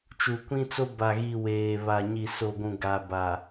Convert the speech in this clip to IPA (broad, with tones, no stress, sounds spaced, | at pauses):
t͡ʃ u˨ kʷ ĩ˦ t͡s o˦ b a˨ ɣ i˨ w eː˨ β a˨ ɲ i˨ s o˨ ɡʷ ũ˨ ɡ a˨ b a˨